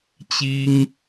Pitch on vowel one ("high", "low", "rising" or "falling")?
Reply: high